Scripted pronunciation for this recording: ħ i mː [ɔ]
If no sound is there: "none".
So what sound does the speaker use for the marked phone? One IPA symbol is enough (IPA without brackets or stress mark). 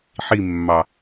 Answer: ɑ